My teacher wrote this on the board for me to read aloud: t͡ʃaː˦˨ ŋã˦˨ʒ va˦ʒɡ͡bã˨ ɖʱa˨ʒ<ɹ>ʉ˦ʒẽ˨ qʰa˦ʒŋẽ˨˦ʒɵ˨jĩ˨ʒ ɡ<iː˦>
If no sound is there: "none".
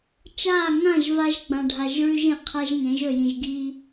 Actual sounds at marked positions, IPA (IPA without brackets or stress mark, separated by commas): ɹ, i˦